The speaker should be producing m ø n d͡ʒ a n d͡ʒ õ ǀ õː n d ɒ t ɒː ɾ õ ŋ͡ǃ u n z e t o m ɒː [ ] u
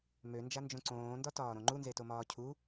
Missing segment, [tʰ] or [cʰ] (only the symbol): cʰ